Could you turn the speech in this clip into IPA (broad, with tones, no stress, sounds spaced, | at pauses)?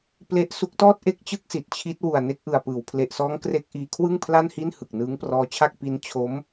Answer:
p l e˦˥ ʔ s u˦˥ k̚ t ɔː˥˩ t̚ ʔ e˥˩ k̚ t͡ɕ ɯ˥˩ k̚ s i˨˩ t̚ t͡ɕʰ i˦˥ t̚ w u˨˩ a̯ n e˥˩ k̚ ʔ ɯ˨˩ a̯ p ɯː˩˦ w pʰ l e˨˩ ʔ s ɔː˦˥ ŋ k r e˦˥ k̚ ʔ iː˧ kʰ w ɯ˥˩ ŋ pʰ l a˥˩ n h i˥˩ n h ɯ˨˩ k̚ n ɯː˦˥ ŋ p r ɔː˦˥ t͡ɕʰ a˥˩ k̚ p i˦˥ n t͡ɕʰ o˦˥ m